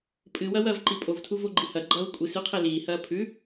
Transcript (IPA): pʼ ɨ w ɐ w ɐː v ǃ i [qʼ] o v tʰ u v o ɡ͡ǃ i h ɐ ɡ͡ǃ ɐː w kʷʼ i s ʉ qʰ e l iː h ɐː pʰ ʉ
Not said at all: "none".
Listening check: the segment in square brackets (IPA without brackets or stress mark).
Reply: pʼ